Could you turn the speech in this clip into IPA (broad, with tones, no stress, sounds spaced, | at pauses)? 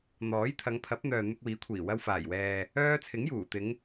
n̪ ɔː˨˥ j t̪ʰ ɐ˨˧ ŋ pʰ ɐ˨˥ p̚ n̪ œː˨ n̪ ɪ˧ k̚ w iː˨˥ kʷʰ iː˨˩ w ɐ˧ w f aː˨˩ j w ɛː˨ | œː˥ t͡sʰ ɪ˨˥ ŋ j uː˨˩ t̪ ɪ˨˧ ŋ